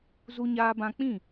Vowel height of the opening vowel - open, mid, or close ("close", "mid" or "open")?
close